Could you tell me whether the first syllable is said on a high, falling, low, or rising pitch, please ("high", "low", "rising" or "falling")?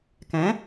rising